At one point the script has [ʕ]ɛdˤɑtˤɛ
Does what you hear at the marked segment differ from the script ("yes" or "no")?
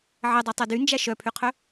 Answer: no